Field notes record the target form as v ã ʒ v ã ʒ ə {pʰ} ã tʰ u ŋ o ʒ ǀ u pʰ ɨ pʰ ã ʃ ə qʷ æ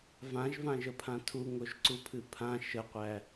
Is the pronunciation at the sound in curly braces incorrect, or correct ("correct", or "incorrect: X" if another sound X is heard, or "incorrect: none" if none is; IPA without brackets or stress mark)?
correct